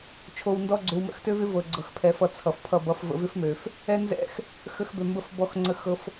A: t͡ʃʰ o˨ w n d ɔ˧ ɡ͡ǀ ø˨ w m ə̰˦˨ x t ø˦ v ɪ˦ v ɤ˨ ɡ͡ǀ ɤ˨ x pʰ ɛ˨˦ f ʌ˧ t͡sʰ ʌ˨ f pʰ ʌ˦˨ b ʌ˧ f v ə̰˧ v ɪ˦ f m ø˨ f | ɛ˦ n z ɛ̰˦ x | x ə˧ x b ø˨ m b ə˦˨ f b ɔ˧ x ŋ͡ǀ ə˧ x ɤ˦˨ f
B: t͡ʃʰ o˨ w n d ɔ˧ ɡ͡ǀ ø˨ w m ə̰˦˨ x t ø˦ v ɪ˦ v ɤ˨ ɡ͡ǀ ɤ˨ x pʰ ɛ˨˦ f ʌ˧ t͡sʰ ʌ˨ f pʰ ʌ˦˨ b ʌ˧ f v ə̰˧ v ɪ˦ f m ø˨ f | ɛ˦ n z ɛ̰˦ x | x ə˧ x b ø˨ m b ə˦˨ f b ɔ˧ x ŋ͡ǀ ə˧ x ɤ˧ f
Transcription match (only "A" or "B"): B